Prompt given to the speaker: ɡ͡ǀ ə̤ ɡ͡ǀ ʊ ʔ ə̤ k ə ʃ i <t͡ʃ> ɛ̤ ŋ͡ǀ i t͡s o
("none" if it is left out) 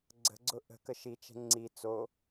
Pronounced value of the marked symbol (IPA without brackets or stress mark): t͡ʃ